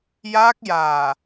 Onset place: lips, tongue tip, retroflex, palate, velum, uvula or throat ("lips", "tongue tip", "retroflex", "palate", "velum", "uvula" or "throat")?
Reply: palate